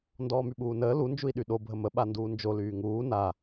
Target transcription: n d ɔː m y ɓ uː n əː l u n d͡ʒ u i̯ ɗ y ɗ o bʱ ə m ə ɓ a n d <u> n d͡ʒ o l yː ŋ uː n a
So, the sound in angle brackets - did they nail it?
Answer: no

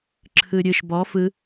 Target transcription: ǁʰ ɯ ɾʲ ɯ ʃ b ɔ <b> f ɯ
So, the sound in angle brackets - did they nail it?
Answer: no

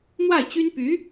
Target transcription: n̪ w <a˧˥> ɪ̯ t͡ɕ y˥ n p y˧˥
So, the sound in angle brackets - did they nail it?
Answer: no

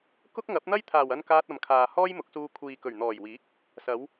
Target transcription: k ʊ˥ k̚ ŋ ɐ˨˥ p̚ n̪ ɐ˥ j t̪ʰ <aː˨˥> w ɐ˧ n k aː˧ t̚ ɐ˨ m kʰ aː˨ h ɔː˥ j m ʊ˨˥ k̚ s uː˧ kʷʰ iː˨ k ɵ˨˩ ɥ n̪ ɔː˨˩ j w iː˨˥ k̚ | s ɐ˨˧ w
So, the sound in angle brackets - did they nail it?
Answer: no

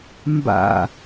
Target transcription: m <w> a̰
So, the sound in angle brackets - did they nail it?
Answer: no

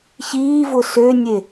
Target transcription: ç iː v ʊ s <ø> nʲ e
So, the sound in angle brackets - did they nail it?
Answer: yes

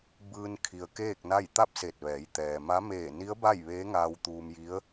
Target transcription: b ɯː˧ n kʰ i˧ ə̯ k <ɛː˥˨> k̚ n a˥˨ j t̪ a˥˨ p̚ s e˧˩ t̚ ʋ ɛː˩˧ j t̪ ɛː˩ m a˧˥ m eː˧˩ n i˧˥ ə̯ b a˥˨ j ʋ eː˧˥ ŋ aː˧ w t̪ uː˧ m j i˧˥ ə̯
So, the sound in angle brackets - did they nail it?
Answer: no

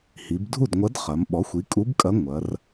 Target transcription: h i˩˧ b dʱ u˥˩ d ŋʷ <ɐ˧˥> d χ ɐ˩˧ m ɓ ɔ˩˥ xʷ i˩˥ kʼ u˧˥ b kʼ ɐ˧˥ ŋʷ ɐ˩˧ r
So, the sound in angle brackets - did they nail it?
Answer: yes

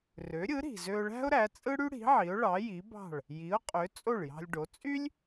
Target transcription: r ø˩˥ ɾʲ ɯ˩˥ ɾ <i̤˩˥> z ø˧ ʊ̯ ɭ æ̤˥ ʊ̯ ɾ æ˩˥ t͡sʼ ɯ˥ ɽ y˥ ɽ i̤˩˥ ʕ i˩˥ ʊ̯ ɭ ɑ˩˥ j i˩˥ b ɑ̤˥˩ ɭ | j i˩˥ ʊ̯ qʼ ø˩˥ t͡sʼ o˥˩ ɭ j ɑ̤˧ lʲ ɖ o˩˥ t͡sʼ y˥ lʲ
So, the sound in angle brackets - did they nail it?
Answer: no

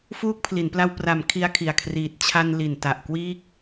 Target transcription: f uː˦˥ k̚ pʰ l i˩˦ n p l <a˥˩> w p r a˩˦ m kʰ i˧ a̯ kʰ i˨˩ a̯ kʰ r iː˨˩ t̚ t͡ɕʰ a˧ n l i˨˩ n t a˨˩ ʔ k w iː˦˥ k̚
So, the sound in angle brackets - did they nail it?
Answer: no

